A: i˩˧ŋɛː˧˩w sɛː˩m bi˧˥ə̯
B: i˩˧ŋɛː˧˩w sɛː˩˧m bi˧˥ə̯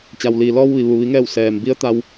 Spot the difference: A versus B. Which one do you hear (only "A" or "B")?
A